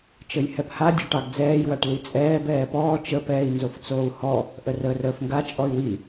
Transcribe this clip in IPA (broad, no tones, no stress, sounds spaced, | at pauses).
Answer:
t͡ʃ ə j h ɛ p h a dʲ ɔ ʈ ɑ ɡ d͡z ɛː j w a ʈ l i t͡sʼ ɛː b ɛː p ɔː t͡ʃ ə p ɛː i̯ n z o f t͡s oː u̯ h ɔ | ʔ ə r əː r əː f ŋ ɡ a t͡ʃʼ ɔ y̯ w i